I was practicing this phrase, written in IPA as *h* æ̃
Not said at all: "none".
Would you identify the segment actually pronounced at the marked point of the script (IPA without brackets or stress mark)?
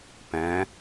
p